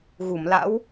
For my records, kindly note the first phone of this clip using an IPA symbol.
ɣ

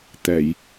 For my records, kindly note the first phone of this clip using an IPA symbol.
t̪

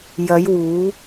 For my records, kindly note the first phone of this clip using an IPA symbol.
j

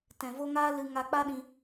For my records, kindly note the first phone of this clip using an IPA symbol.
t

